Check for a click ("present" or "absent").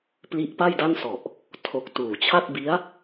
absent